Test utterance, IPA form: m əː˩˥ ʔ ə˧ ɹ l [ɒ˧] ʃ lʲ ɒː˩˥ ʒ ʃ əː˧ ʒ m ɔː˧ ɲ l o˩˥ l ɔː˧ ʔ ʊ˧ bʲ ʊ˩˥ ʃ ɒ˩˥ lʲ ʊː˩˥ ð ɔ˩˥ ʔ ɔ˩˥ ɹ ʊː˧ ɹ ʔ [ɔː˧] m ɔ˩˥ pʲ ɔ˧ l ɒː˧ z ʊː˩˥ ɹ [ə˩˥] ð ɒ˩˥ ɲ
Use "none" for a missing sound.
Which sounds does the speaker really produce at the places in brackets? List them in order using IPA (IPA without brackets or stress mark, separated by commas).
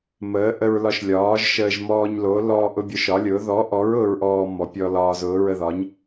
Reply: ɒ˧, ɔː˧, ə˧